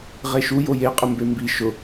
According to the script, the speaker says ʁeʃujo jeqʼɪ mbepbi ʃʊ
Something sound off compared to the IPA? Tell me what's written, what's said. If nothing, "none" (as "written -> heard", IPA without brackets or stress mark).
p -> m